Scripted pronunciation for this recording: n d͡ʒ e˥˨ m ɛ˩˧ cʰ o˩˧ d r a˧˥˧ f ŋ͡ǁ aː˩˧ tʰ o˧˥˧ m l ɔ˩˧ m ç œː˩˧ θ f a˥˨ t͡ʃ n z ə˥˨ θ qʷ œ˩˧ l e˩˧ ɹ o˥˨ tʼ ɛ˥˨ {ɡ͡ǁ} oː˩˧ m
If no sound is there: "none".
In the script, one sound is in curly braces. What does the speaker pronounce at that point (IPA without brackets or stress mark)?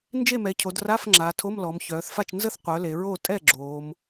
ɡ͡ǁ